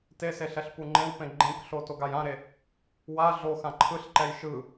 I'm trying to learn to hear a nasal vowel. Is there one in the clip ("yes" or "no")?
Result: yes